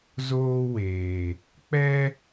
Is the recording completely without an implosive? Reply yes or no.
yes